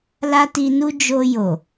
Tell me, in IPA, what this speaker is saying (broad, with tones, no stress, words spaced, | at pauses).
la˦ti˧nu˦ d͡ʒo˧ jo˨